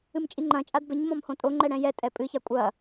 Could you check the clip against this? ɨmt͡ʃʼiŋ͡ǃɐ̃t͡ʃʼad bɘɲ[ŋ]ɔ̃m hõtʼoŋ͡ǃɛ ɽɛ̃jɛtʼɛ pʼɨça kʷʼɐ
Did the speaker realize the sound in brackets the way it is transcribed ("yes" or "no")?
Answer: no